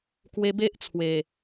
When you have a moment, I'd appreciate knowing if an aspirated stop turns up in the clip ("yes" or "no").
yes